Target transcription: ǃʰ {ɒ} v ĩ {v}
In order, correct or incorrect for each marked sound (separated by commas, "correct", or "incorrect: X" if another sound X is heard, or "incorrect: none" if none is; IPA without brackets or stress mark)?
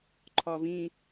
correct, incorrect: none